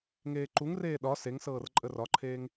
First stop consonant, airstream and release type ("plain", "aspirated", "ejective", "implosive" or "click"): click